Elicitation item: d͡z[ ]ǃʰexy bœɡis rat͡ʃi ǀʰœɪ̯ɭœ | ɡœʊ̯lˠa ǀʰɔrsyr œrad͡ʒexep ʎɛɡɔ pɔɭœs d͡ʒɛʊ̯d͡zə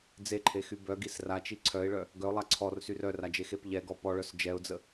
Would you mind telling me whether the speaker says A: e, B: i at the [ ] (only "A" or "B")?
A